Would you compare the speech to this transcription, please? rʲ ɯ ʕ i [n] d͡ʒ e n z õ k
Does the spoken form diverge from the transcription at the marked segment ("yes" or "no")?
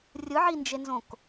no